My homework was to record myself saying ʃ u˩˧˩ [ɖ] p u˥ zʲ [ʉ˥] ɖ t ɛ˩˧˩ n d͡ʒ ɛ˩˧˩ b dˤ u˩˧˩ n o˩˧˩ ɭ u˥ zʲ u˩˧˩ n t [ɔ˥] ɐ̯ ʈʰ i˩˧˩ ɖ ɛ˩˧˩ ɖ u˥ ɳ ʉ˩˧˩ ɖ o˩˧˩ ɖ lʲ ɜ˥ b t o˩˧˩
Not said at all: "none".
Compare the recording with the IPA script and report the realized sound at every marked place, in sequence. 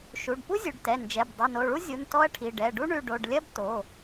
ɖ, ʉ˩˧˩, ɔ˥

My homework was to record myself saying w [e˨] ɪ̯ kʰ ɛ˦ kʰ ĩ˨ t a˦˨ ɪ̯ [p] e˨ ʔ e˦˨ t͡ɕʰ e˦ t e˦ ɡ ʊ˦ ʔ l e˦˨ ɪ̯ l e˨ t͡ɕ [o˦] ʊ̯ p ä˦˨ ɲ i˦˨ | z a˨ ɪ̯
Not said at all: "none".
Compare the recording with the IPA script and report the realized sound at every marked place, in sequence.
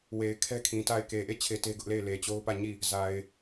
e˨, k, o˦

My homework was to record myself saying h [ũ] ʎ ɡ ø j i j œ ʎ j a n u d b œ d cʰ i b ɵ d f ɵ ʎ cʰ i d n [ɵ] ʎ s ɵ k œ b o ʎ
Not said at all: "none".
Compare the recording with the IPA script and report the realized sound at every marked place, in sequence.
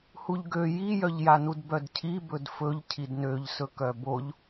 u, ø

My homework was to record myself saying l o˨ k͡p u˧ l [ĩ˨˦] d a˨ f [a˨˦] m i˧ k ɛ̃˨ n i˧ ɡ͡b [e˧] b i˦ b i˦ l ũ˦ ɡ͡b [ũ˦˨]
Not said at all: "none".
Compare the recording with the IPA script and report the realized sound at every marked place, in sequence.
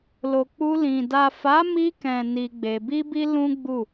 ĩ˨, a˨˦, e˧, u˦˨

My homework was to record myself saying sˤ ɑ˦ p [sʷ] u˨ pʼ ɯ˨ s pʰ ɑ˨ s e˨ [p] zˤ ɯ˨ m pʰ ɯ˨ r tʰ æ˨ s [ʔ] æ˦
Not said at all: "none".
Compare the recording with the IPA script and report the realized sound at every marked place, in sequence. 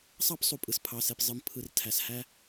sˤ, p, h

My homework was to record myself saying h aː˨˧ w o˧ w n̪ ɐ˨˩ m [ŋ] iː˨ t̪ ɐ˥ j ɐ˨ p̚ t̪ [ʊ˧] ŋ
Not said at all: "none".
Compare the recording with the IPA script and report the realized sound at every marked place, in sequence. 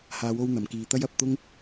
k, ʊ˥

